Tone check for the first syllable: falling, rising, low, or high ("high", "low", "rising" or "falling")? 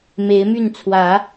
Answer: rising